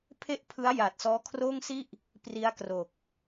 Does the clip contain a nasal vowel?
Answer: no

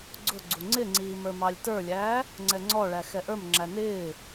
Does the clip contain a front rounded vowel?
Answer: no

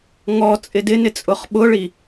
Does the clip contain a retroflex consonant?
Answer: yes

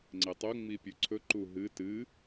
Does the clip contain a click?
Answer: yes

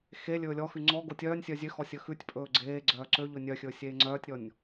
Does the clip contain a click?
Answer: yes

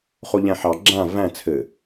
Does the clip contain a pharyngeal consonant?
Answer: yes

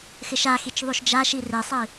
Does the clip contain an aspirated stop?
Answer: no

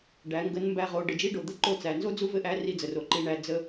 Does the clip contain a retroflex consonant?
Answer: yes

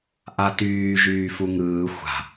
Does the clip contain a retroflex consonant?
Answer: no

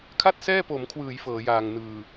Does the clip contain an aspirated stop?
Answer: yes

